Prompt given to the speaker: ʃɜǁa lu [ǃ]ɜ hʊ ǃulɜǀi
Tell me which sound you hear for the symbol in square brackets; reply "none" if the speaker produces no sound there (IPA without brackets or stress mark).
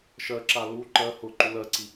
ǃ